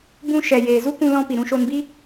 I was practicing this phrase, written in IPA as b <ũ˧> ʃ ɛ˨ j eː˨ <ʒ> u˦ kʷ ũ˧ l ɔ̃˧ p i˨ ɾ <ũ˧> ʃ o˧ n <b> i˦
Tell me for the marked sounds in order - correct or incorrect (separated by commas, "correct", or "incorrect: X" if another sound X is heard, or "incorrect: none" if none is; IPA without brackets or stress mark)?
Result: correct, incorrect: z, correct, correct